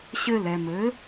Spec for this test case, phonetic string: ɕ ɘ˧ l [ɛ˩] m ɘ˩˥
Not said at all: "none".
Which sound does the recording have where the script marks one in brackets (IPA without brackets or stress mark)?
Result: ɛ˩